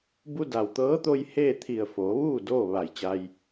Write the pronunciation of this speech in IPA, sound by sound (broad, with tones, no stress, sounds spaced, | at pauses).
b u˧ d a˩ w t̪ ɤː˧˥ t̪ o˧ j h eː˥˨ t̪ʰ i˧˩ ə̯ f oː˩˧ ʋ uː˥˨ d oː˥˨ ʋ a˧˩ j t͡ɕ a˧ j